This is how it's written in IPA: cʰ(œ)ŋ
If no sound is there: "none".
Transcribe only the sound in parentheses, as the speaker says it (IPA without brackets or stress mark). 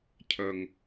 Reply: œ